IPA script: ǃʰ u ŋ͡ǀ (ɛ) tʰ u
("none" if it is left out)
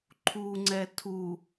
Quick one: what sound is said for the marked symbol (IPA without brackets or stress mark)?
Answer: ɛ